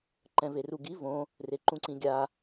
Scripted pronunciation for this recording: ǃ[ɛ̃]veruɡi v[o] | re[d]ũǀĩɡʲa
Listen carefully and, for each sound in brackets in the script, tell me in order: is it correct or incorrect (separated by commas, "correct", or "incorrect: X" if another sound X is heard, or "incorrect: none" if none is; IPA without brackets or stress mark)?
correct, incorrect: õ, incorrect: ǃ